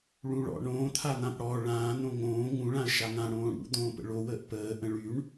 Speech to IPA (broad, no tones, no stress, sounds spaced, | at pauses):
ɭ ũ ɭ ɔ̰ ɳ õː t̪ʰ a n̪ ã p ɽ ɔ ɭ ãː n̪ õ ŋ õː ŋ ũ ɭ ã ə̯ ʃ a ŋ ã ɽ õː ɽ ṵ d̪ õː p ə̰ ɭ o w əː ʔ p əː ʔ ə̃ ɭ y ɳ